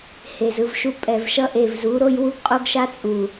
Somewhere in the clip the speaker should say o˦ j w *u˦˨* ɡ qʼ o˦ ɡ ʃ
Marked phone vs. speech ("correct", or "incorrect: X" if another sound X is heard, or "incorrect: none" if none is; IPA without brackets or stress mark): incorrect: u˦